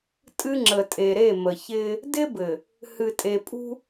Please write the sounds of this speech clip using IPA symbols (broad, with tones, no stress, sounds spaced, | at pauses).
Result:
tʼ ɨ˦ ŋ͡ǁ ə˨ tʼ e˨ ɾ e˦˨ m ə˨ ç ɪː˦ | d ɪ˦ b ɘ˨ | h ɨ˨ tʼ e˨ pʼ ṳ˦